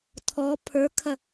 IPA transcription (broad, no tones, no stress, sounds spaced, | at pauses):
tʰ ɔ pʰ ə˞ kʰ ɐ